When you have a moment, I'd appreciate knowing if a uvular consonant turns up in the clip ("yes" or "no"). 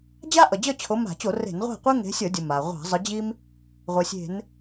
yes